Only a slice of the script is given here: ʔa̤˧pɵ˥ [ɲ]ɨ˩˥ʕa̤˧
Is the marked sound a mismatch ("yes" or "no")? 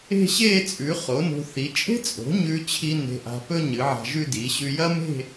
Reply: no